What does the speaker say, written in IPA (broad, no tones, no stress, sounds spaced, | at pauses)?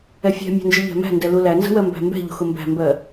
ɛ fʲ ɛ̤ mʲ æ̤ n d͡ʒ ə ʎ æ̤ m æ̤ n d ɛ l u l æ n z ə̤ w ɜ m b æ̤ m b ɛ̤ ʎ ṳ x ʊ m b æ̤ m b ɜ